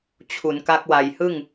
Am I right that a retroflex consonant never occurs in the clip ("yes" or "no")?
yes